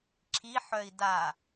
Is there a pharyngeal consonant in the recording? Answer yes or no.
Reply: yes